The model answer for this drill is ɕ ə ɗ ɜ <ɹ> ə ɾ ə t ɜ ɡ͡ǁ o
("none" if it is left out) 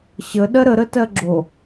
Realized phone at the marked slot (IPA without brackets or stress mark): ɾ